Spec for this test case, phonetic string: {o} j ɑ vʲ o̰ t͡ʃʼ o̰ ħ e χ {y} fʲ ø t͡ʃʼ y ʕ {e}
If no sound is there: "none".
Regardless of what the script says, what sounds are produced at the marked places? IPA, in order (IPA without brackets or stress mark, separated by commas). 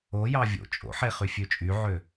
o, y, ø